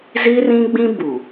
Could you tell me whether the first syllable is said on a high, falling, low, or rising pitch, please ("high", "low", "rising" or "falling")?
high